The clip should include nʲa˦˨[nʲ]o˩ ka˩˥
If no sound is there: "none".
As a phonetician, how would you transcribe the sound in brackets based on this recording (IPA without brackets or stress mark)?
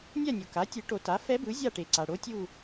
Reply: nʲ